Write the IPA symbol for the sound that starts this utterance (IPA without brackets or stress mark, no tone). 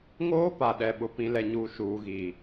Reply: ŋ